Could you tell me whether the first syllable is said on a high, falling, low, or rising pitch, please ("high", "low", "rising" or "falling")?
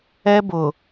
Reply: high